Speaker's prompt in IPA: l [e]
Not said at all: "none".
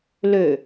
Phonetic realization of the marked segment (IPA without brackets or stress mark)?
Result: ø